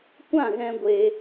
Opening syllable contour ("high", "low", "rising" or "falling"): falling